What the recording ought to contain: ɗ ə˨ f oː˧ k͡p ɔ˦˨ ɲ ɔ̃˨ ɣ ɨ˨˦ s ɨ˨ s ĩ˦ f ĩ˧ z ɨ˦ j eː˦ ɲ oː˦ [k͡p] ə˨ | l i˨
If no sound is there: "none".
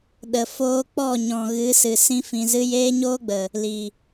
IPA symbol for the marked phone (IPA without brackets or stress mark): ɡ͡b